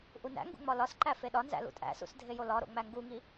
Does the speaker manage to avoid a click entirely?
no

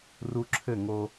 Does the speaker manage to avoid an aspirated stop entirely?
no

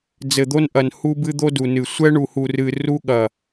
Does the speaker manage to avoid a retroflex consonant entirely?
no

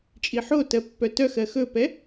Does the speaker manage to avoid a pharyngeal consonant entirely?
no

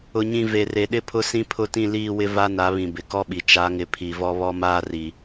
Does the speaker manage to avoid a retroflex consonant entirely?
yes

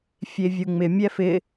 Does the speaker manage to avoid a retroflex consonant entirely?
yes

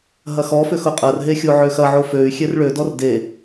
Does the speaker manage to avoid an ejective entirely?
no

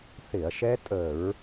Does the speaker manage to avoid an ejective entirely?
no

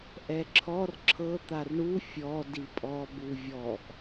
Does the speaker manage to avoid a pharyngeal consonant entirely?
yes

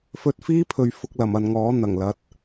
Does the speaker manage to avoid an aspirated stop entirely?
no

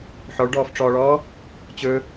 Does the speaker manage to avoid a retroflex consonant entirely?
no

